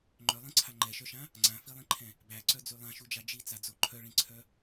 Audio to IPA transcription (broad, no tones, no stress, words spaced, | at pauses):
ŋ͡ǃœlˠĩǀʰa ŋ͡ǃɛʃœʃã | ŋ͡ǀãfilˠĩǃʰɛ̃ | bæǀœd͡zy lˠãʃud͡ʒa d͡ʒit͡sad͡zo ǃʰœɭĩǀʰœ